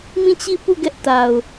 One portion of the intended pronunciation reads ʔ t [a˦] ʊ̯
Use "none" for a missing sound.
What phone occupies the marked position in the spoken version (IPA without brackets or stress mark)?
a˨